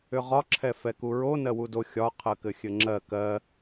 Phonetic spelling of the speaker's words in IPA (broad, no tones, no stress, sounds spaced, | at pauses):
ʏ ʁ ɒ ǁʰ ɛ f ɛ k u ɹ o n ɜ w u d o xʲ ɒ qʰ ɜ k ɘ xʲ ɘ ŋ͡ǁ ɜ k ɜ